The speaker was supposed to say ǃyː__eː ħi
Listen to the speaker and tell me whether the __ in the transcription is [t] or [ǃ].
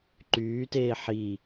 t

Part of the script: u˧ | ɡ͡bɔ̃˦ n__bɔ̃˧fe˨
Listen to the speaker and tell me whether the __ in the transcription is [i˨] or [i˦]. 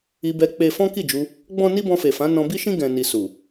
i˦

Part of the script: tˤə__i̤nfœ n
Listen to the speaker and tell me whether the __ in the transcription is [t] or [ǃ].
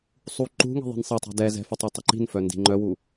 ǃ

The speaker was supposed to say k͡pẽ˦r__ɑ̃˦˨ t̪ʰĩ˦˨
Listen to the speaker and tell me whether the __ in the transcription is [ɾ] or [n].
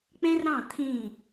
ɾ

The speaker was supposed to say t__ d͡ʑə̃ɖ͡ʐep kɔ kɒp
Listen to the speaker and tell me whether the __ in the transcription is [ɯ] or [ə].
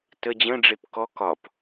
ə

